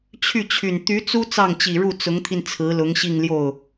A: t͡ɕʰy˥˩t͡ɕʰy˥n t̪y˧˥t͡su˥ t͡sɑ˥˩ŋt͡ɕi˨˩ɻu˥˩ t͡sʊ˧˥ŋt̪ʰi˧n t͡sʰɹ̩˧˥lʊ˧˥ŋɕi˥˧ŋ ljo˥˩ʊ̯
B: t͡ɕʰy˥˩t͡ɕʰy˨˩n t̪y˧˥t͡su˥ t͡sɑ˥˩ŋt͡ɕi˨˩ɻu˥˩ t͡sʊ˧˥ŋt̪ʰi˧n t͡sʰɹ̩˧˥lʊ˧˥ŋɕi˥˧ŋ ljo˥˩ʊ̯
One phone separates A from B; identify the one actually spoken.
B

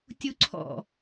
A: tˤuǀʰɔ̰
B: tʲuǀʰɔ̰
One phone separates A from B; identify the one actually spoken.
B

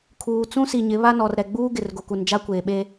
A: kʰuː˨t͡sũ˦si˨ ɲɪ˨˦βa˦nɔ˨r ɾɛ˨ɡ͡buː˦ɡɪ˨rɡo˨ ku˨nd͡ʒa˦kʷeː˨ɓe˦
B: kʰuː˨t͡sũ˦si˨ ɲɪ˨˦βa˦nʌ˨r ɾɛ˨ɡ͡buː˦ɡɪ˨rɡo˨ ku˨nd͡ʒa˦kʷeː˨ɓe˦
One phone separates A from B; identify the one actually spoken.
A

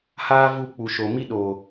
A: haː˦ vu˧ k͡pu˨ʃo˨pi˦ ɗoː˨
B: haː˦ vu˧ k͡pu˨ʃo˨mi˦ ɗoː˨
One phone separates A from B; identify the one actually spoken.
B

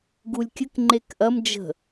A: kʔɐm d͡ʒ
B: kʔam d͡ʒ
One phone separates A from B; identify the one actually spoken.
A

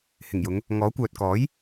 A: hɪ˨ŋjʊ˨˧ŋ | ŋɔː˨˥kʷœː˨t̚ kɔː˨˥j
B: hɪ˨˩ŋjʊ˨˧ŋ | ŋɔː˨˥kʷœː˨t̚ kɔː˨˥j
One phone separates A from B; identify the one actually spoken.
B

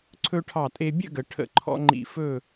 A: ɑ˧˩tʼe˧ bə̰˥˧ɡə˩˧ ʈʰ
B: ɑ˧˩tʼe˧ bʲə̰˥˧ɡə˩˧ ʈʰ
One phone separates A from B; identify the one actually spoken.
B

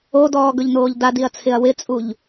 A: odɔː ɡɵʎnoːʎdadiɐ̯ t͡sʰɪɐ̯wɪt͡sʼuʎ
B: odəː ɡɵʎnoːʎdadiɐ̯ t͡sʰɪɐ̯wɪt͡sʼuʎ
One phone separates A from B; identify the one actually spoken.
A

